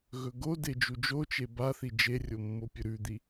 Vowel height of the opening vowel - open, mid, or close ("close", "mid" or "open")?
mid